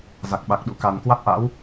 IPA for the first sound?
z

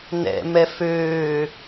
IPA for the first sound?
n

